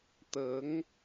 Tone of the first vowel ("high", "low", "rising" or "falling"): rising